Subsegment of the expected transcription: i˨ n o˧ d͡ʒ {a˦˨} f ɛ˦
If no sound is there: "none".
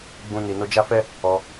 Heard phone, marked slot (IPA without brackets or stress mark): a˦